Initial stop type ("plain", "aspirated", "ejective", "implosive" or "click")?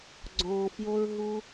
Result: click